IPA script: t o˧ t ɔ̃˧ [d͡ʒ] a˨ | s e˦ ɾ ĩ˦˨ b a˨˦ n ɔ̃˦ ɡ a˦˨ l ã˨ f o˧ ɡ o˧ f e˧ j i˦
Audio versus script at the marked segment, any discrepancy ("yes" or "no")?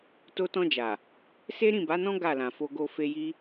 no